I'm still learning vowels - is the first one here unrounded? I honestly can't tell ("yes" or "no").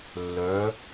no